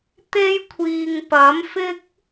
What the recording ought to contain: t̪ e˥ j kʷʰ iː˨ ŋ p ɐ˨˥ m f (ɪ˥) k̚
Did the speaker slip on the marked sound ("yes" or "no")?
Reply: no